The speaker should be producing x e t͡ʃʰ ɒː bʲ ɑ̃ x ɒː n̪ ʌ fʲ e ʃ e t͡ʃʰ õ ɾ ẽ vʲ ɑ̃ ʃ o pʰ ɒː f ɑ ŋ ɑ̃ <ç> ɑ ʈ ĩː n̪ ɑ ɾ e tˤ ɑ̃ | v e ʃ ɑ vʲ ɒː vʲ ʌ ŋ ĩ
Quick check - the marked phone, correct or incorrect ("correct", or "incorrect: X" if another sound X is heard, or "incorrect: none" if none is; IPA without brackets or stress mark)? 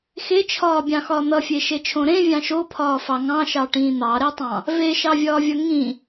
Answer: incorrect: ʃ